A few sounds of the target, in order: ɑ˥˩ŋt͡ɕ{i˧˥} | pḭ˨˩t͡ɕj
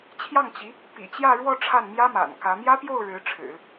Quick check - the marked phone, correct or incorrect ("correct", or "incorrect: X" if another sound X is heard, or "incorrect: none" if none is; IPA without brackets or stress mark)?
correct